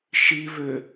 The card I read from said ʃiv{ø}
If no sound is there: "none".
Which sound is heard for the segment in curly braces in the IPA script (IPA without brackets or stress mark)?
ø